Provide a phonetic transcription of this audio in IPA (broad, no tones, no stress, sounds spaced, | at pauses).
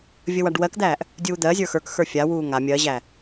vʲ ə w a ɖ w ɜ k d̪ æː ʔ | dʲ uː d̪ ɜ zʲ ə˞ x ə˞ k x ə˞ fʲ a w uː ŋ a mʲ ɜ ʑ æ